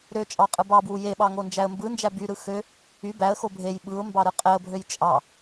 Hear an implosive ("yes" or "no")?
yes